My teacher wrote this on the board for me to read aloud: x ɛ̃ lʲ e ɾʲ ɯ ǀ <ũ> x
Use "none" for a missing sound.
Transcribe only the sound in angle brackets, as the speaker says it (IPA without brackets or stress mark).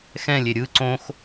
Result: õ